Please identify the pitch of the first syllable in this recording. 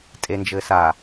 low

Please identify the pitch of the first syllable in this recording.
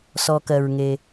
low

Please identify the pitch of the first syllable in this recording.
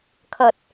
low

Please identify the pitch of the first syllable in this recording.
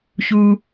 high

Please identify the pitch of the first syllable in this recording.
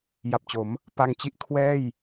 low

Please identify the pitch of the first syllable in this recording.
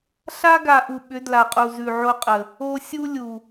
high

